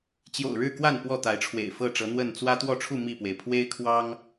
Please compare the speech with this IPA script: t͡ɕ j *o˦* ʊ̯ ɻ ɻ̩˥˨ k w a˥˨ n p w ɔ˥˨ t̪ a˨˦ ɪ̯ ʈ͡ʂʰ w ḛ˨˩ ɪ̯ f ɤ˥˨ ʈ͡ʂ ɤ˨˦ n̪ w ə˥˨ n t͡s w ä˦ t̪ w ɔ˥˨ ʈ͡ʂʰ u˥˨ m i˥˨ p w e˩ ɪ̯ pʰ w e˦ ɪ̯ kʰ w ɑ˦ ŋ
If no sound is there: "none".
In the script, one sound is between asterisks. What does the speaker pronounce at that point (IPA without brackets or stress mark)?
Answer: o̰˨˩